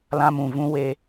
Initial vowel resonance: nasal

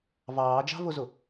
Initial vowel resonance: oral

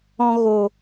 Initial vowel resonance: nasal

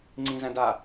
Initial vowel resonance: nasal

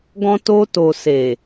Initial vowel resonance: nasal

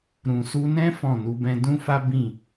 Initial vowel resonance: nasal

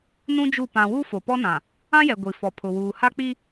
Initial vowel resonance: nasal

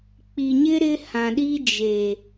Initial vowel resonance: oral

